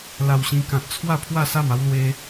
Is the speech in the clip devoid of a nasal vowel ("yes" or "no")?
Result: no